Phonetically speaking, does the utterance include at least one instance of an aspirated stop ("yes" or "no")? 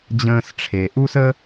yes